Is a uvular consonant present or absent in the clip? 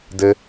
absent